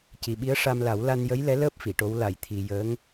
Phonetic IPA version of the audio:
c i˨˩ ɓ i˧˥ ə̯ ʂ a˧ m l a˨˩˦ w l a˧ n j ə˧˥ j l ɛ˧˥ l əː˦˥ p̚ f i˨˩˨ ʈ o˧˥ w l a˨˩˨ j t̪ʰ i˨˩ j əː˧˥ ŋ

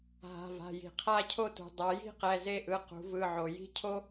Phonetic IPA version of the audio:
ɦ a̤˩˧˩ v a̤˩˧˩ j i̤˩ qʰ a˥˧ cʰ o˥˧ t ṳ˩ dˤ a˩˧ j i̤˥˧ q ɛ˩˧˩ z e˥˧ ʔ ɯ˩˧˩ q ṳ˩˧ v ɯ˩˧˩ ʕ o˩ j i̤˥˧ cʰ o˥

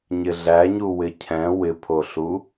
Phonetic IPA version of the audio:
ɲ ɪ ɮ æ ɲ u w ɪ cʰ ɛ̃ w ɪ pʰ o ɬ u

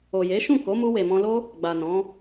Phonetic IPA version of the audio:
o˨ j e˨˦ ʃ ũ˦˨ k o˨˦ m u˧ w e˨ m ɔ̃˧ l o˦ | ɡ͡b a˨ n ɔ̃˨˦

